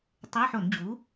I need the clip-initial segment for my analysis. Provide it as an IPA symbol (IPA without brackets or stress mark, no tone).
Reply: tˤ